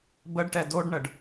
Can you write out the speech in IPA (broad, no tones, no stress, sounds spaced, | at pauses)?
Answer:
b ə ɖ ʈ ɛ d o ɖ ɳ ə ɖ